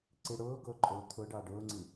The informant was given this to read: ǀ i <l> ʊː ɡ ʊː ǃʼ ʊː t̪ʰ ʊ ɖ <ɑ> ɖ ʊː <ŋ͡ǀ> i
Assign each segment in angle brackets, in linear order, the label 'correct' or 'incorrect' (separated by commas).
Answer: incorrect, correct, correct